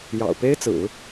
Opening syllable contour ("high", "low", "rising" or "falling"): low